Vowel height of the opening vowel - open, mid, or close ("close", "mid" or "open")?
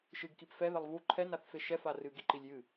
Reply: close